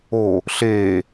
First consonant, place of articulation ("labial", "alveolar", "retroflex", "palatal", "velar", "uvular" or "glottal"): alveolar